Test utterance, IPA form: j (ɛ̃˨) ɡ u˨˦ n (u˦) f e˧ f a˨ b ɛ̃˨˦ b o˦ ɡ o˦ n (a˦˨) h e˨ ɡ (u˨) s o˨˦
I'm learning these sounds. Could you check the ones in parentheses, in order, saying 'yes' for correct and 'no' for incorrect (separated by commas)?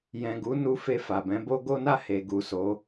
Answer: yes, no, yes, yes